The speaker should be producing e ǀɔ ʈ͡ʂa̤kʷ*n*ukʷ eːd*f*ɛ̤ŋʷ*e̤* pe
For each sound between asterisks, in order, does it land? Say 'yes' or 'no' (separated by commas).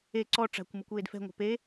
no, yes, yes